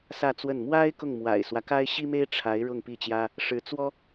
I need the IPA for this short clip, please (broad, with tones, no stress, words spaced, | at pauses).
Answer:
sä˥˧t͡swə˥˩n mwa˥ɪ̯ kʊ˥˩ŋmwa̰˨˩ɪ̯swä˦ka˥ɪ̯ ɕi˥me˥ɪ̯ ʈ͡ʂʰa˧˥ɪ̯ ɻʊ˥˧ŋpi˥˩t͡ɕjä˥ | ʂɻ̩˧˥t͡swɔ˥